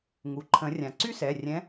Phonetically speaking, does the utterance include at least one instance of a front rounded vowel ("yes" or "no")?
yes